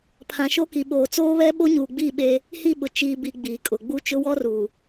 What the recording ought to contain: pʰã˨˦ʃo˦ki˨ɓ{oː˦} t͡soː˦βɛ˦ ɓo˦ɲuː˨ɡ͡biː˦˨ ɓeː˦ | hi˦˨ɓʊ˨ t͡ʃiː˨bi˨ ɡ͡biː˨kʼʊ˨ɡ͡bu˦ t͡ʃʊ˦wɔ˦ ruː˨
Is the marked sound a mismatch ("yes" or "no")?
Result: yes